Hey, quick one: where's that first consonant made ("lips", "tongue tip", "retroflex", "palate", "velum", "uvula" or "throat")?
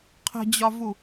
uvula